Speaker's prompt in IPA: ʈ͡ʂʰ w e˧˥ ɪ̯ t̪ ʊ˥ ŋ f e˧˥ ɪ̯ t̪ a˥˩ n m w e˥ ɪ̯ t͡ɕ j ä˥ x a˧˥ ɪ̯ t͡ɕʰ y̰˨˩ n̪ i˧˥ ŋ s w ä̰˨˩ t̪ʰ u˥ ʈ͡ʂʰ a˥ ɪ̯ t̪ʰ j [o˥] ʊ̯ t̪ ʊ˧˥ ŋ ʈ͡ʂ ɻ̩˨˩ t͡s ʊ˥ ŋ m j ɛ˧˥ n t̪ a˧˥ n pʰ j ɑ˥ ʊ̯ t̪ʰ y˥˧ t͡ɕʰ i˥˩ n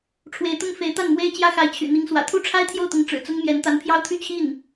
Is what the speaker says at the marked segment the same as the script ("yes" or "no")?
no